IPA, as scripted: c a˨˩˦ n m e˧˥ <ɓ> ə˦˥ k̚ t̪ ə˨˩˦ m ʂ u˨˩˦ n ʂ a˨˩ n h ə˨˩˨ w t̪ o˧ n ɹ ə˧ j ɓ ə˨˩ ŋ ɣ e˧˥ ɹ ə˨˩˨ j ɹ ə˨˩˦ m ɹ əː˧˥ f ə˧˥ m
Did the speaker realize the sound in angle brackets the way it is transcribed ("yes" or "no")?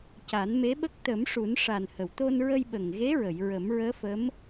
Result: yes